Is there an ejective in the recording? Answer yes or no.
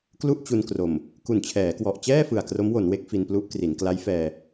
no